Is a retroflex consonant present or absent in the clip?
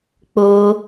absent